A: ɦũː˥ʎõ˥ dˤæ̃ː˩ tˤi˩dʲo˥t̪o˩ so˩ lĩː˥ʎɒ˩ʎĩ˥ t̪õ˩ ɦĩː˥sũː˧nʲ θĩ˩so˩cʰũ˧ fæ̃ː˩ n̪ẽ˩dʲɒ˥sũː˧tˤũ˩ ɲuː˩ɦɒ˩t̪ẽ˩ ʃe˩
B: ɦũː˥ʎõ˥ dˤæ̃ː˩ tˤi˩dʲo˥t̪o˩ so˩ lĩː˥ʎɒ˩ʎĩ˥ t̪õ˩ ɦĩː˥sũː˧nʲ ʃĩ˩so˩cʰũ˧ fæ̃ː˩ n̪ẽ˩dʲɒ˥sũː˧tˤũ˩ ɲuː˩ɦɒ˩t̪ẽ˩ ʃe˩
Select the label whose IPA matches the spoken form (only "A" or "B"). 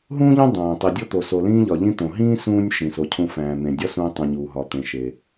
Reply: B